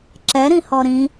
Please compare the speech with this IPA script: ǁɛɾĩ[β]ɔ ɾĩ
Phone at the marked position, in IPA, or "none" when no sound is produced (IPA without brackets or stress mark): h